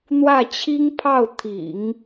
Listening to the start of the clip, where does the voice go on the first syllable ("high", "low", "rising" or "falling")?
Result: falling